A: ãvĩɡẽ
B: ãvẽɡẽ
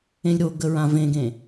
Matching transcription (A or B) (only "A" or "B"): B